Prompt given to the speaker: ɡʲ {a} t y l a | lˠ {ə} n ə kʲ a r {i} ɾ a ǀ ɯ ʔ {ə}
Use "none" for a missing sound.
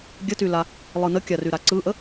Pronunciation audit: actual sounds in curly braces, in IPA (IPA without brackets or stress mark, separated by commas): ə, ɯ, y, ə